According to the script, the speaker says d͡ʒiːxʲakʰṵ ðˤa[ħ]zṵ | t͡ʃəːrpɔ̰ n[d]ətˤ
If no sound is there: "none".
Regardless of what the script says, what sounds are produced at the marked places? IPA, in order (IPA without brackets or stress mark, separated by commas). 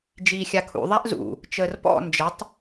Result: ʔ, d͡ʒ